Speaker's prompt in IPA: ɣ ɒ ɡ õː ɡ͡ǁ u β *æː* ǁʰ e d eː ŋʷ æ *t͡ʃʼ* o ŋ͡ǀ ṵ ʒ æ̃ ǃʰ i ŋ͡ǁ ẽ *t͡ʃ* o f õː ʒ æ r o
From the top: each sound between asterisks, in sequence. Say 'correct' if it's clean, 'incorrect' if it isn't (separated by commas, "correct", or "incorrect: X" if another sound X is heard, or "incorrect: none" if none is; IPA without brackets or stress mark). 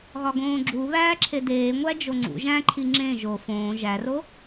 correct, incorrect: d͡ʒ, incorrect: ʒ